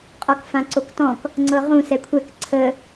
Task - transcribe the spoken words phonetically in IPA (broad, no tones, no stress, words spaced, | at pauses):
qʼɔkfãǀoktɔ̃k | ŋ͡ǀɤʁũ sɛkʷʰɛk ǀʰə